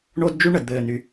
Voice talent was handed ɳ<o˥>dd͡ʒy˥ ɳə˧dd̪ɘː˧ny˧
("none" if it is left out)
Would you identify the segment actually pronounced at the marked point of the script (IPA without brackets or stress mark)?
o˥